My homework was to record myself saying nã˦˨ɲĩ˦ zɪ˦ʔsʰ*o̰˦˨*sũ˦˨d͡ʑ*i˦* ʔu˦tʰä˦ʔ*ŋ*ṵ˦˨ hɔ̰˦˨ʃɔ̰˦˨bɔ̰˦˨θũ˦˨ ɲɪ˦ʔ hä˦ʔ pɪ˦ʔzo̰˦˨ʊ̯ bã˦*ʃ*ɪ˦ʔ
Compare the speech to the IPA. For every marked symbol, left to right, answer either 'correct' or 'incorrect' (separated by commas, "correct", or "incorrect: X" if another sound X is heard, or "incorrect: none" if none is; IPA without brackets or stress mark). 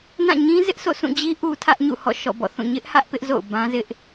correct, correct, incorrect: ɲ, incorrect: z